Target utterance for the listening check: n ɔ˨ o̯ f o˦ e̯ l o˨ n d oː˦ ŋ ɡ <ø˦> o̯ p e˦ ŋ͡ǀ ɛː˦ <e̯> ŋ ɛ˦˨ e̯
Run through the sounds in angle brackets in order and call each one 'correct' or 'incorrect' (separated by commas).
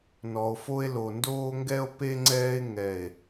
incorrect, correct